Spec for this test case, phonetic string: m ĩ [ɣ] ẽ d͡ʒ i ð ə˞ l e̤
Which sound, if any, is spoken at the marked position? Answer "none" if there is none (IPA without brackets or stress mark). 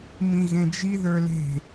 ɣ